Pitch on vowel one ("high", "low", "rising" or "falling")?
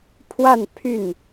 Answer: falling